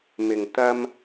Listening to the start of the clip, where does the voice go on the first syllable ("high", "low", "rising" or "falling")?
low